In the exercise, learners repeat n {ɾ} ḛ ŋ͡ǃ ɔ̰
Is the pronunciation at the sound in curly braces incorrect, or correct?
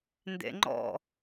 incorrect